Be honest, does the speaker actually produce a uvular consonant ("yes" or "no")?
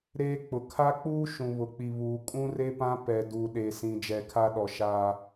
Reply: no